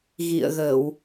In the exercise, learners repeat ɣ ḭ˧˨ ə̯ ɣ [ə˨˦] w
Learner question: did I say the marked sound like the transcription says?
no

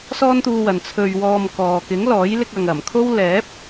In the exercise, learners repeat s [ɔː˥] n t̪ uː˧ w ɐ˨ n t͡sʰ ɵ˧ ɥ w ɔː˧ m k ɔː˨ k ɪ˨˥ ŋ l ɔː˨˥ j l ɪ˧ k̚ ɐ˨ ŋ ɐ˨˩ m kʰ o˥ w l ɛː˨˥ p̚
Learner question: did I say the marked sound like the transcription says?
yes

